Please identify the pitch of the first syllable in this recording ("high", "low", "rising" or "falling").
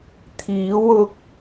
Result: rising